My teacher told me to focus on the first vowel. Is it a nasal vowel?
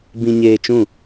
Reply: yes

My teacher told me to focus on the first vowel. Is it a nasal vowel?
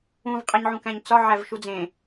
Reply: yes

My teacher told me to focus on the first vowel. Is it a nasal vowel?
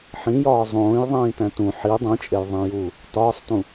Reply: yes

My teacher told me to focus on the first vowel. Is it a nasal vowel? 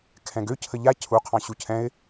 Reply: yes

